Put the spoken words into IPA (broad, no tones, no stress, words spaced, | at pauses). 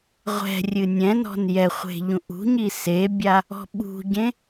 ʁʷɛ̤rʲɨ nʲɛ̃nɔ̤n jɛχʷe̤ ʎũʔṳɲi sebʲa | ɔ̤ɓṳɟẽ